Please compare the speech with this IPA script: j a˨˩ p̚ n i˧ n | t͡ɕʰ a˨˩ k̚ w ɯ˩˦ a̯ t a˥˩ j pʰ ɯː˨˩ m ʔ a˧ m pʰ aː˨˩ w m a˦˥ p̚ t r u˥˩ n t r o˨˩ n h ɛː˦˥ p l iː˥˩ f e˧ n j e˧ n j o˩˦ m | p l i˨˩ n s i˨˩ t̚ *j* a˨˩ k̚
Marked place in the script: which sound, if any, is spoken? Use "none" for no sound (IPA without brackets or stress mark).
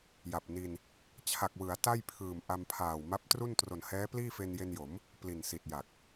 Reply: j